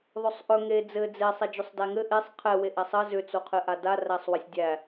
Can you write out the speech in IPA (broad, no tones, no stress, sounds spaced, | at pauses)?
ðˤ ɵ sˤ ʔ ɵ ŋ e d͡z ɘ d͡z e sˤ ɛ d͡ʒ ʏ sˤ d æ ŋ ɘ ʔ e sˤ qʰ ɛ w e ʔ æ sˤ ɘ z ʏ t͡s o qʰ ɘ ʔ a d a r æ sˤ w ɘ sʲ dʲ æ